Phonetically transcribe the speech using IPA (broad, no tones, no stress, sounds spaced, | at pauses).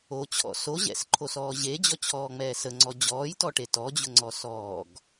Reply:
o t͡ɕʰ ɔ̰ s o ʑ ɛ̰ s ǃʰ o s ɔː ʑ e d͡ʑ ɔ t͡ɕʰ ɔː ŋ͡m ɛː s ə ŋ͡ǀ ɔ d͡ʑ ɔː j t ɔ ʈ e t ɔ d͡ʑ ʊ ŋ͡ǀ ɔ s ɔː ɡ